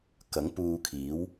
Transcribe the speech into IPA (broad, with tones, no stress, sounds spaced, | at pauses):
k ɐ˨˥ ŋ p uː˧ kʰ iː˨˥ w